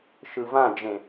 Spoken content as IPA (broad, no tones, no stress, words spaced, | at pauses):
ʃɯvãd͡ʒẽ